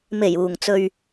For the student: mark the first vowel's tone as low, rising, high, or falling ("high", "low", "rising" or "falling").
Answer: low